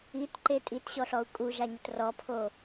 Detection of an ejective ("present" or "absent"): present